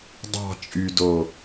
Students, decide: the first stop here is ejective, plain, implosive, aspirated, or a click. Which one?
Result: plain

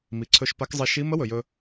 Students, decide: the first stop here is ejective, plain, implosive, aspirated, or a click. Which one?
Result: click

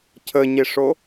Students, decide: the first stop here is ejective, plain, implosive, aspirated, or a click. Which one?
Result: aspirated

